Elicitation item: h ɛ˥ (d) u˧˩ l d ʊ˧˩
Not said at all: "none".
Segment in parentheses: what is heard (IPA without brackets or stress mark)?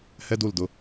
d